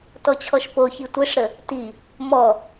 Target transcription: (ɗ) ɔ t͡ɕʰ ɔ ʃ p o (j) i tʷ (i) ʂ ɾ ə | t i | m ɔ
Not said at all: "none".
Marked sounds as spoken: t, ç, e

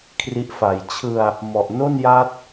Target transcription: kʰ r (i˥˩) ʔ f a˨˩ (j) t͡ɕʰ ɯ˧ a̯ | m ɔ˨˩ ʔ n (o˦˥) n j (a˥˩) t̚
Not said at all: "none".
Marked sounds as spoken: i˦˥, j, o˥˩, a˦˥

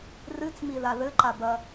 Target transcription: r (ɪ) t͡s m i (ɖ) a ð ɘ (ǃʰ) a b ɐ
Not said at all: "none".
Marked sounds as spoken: ɨ, ð, ǃ

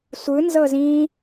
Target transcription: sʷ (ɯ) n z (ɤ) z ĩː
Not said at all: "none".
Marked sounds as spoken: ɯ, ɤ

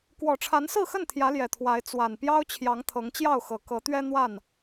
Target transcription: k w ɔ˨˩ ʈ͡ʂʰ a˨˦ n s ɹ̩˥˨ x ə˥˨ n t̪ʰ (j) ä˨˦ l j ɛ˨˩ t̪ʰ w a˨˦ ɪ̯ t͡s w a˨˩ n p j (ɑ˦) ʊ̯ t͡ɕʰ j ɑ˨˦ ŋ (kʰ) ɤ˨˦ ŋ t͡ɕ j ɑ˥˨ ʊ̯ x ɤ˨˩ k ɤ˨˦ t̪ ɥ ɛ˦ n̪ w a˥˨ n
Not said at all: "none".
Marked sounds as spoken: j, ɑ˦, t̪ʰ

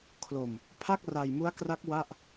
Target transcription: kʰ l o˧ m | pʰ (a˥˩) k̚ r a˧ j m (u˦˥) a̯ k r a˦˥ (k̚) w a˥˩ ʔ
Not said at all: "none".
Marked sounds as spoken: a˥˩, u˦˥, k̚

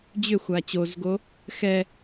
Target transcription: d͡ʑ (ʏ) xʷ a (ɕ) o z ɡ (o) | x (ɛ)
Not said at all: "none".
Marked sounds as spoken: ʏ, t͡ɕ, oː, ɛ

